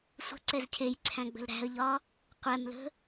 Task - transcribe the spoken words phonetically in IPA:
sʷ ə̤ ǀ ɛ z cʰ e j ǀʰ æ̃ ɡ͡b ə̤ l ɾ æ̤ ə̯ ʎ ɒ | qʷ ɛ m l ə̤

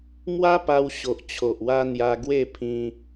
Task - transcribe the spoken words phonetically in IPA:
m w a˦ p a˧ w ɕ o˨ ʔ t͡ɕʰ o˨ ʔ w a˧ n̪ j a˧ ɡ w e˥˧ pʰ ĩ˧

